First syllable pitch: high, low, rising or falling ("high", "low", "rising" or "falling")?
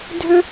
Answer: high